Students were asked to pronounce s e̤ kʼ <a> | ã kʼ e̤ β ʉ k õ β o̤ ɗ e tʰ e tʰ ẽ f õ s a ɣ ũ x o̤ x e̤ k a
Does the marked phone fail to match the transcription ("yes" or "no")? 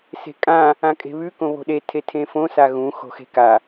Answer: yes